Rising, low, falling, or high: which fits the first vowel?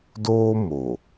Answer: high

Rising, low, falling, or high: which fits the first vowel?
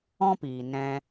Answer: high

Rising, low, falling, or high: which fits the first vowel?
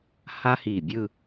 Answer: high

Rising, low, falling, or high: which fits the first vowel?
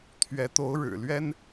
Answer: rising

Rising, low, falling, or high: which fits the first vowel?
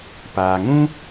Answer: low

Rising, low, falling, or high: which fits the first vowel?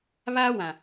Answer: high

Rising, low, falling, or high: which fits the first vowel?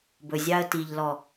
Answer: low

